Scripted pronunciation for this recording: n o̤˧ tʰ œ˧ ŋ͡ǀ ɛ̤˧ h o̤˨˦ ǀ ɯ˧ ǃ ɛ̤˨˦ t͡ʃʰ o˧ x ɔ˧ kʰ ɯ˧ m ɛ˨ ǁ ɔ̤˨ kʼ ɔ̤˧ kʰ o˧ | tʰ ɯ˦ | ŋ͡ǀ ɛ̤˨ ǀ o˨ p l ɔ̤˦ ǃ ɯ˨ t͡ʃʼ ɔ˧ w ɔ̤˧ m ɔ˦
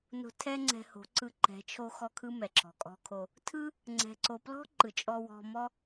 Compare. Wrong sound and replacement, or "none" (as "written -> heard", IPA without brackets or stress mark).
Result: œ˧ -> ɛ˧